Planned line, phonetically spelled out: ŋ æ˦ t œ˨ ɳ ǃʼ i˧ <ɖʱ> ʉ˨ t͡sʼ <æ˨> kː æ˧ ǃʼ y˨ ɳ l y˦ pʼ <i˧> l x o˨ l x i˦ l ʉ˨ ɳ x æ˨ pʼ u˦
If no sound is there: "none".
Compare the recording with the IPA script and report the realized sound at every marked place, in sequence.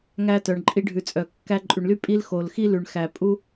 ɖʱ, œ˨, i˦

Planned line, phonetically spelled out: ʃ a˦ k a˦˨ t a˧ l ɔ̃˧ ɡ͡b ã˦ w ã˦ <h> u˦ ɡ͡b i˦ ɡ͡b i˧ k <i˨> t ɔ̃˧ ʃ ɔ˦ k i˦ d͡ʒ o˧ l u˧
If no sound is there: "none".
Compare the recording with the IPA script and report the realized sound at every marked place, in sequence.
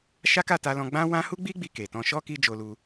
h, e˨

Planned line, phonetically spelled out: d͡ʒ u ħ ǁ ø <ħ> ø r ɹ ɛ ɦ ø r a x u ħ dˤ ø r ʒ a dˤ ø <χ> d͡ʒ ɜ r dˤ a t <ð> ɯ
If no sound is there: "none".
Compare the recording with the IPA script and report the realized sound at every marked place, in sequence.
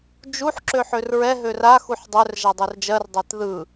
ħ, r, ð

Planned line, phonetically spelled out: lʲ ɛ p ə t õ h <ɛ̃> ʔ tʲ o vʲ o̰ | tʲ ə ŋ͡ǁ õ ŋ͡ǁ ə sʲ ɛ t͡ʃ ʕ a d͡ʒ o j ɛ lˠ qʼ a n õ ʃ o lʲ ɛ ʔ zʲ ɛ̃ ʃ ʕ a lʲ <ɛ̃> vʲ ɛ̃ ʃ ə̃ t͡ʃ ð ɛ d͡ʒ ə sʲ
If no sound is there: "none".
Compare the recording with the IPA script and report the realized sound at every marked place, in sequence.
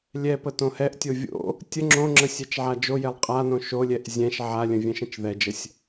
ɛ, ə̃

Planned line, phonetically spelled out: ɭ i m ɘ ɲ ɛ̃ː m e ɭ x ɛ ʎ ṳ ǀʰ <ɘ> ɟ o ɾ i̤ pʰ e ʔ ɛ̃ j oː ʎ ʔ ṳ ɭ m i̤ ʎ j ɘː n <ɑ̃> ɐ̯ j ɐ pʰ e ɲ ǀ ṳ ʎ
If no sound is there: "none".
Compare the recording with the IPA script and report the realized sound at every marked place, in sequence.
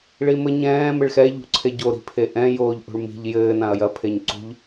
e, ã

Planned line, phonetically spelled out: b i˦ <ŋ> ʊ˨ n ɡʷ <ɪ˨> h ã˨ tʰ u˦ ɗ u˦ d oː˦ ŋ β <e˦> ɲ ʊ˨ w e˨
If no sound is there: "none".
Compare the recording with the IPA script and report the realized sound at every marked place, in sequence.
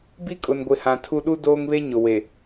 kʼ, ɪ˨, e˦

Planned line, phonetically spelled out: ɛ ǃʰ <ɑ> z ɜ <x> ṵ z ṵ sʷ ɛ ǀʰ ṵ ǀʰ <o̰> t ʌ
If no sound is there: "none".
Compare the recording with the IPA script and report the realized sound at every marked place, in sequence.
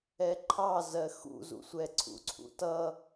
ɑ, x, ṵ

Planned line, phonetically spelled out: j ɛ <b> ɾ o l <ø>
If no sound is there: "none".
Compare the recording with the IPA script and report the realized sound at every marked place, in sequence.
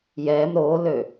m, ø

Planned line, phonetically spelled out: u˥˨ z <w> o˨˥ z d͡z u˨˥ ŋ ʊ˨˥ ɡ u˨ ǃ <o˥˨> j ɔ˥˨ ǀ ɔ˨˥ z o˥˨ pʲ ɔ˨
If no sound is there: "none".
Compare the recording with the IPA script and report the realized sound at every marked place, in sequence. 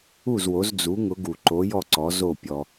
w, o˨˥

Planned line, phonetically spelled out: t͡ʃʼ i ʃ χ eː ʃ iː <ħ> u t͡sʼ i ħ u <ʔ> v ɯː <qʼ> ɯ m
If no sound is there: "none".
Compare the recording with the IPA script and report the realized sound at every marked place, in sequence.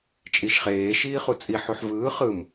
χ, ħ, χ

